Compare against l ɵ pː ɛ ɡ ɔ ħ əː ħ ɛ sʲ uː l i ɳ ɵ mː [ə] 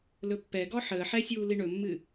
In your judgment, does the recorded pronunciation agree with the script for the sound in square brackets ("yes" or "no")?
no